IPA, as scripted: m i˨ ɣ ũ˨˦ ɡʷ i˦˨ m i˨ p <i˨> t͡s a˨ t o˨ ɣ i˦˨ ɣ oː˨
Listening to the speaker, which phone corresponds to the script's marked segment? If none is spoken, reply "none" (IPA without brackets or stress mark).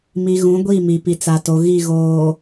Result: i˨